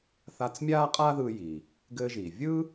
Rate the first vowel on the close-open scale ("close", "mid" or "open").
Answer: open